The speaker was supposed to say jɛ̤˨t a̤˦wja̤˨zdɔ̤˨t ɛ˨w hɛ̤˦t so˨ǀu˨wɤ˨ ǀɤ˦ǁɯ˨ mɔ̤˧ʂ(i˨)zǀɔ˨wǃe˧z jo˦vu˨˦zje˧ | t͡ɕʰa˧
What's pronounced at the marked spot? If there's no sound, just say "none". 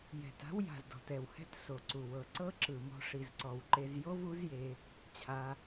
i˨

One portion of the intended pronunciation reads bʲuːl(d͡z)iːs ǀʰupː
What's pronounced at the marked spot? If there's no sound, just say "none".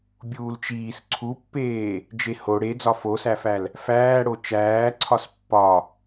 t͡ʃ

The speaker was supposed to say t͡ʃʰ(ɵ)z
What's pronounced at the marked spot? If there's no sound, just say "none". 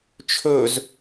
ɵ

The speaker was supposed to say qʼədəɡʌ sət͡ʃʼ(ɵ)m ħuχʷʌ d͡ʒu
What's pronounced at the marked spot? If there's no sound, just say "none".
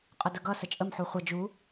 ə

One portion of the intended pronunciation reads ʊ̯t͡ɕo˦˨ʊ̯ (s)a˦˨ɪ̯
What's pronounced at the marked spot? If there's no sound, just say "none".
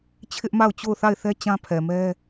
θ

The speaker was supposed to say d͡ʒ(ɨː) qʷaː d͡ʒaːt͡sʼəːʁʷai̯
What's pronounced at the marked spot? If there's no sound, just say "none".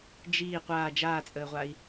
iː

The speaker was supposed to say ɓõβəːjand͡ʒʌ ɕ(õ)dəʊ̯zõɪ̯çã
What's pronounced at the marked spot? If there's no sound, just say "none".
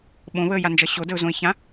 o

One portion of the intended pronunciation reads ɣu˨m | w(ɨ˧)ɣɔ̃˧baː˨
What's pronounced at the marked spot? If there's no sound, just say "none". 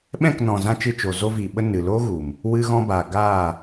ɨ˧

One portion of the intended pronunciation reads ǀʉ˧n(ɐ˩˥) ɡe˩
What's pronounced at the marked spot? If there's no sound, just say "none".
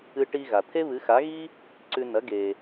ɐ˩˥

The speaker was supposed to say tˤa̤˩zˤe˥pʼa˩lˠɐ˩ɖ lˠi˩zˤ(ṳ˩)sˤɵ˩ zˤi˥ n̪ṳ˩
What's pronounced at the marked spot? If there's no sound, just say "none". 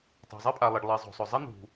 o̤˩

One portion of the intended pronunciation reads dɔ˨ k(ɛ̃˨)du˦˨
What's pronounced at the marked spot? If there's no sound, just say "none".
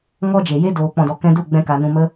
ɛ̃˧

